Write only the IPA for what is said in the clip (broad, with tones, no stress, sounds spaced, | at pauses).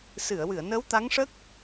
s ɨ˨˩˨ ə̯ w ɨ˨˩˨ ə̯ n əː˧˥ w t̪ a˧˥ ŋ ʂ ə˦˥ k̚